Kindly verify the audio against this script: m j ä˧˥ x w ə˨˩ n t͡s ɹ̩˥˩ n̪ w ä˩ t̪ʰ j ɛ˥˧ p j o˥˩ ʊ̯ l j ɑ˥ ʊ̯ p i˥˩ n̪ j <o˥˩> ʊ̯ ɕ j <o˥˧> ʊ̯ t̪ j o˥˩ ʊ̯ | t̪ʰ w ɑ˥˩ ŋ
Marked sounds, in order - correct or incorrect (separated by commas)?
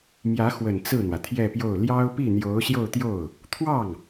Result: incorrect, correct